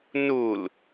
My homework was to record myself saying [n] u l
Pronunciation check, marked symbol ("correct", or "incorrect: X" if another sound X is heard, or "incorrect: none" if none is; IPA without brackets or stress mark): correct